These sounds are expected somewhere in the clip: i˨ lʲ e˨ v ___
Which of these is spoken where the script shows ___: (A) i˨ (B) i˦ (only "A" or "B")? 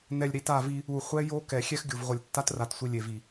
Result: A